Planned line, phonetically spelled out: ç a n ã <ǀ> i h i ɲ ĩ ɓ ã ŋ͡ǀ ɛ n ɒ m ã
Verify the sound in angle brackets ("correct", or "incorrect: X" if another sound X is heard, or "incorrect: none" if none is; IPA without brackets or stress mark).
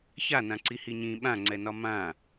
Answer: correct